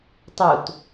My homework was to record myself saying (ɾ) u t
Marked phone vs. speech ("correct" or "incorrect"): incorrect